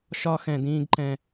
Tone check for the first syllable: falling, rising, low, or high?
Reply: high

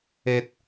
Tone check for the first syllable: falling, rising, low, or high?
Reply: low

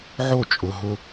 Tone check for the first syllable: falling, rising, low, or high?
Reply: falling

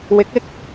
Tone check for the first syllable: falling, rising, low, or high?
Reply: rising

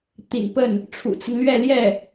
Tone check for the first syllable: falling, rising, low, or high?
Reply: low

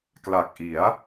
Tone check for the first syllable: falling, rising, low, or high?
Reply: low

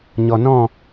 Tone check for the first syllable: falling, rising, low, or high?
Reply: low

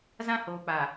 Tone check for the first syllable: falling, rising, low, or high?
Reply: high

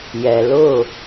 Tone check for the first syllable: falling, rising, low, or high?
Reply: low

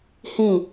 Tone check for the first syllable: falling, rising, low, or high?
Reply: falling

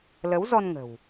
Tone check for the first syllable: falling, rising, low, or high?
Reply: rising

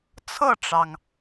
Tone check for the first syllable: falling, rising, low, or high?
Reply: falling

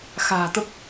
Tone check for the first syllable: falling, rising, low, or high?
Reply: low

